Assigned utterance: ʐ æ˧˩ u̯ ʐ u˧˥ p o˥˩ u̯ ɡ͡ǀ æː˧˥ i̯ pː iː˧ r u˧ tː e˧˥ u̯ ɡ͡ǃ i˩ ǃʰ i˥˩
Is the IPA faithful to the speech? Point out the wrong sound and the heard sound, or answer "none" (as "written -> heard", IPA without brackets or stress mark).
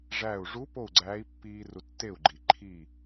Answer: e˧˥ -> e˥˩